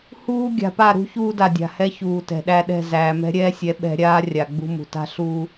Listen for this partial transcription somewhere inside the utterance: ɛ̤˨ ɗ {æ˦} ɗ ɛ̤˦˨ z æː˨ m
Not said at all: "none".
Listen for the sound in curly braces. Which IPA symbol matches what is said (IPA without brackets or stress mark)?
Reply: æ˦